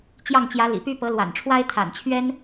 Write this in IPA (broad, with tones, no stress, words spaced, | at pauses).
t͡ɕjɑ˥˩ŋt͡ɕjä˧˥lḭ˨˩py˥ pɤ˧˥lwa̰˨˩nʈ͡ʂʰwa˥ɪ̯ t̪ʰa̰˨˩nt͡ɕʰɥɛ˥n